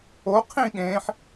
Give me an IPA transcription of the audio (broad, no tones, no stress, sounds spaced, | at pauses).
o qʰ ĩ ɠ ẽː ħ